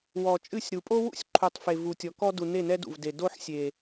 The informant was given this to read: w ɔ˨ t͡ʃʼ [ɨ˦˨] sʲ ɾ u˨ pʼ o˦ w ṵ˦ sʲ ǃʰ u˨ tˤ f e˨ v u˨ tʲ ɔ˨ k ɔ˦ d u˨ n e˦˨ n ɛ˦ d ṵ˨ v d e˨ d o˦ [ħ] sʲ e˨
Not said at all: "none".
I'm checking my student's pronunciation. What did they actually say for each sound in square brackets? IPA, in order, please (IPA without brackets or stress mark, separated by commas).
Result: ɨ˦˨, ħ